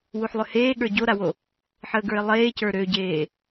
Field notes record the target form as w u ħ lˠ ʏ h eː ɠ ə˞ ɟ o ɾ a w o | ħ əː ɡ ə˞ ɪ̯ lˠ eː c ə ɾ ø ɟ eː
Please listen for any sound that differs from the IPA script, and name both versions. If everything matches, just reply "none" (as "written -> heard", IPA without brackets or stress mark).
ə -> ə˞